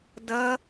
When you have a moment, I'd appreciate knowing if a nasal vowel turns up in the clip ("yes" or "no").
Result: no